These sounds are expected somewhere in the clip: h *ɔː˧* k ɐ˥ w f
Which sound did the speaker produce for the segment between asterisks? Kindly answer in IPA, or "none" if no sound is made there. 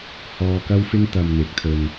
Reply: ɔː˧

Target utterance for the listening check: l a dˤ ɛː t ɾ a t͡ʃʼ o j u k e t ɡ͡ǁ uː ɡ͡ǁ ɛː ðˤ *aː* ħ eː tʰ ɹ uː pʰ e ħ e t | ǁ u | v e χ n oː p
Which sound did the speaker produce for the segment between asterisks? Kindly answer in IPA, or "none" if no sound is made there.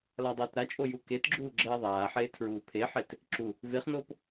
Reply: aː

